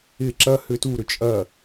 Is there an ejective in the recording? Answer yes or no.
yes